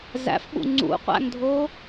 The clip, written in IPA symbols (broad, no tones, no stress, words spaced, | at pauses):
zæ̰fɓṵ ŋ͡ǀṵqʷæ̰ŋdʱo